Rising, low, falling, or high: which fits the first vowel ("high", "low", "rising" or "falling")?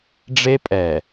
high